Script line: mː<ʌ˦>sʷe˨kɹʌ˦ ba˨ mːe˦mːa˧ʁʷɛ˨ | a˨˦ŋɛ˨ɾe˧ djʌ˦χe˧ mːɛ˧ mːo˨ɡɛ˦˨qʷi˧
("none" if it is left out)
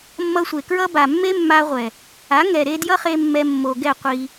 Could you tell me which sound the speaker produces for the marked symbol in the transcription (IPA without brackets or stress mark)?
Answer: ʌ˧